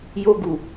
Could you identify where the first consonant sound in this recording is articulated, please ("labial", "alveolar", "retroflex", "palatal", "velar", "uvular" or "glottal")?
palatal